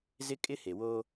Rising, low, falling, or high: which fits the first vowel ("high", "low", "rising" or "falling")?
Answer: high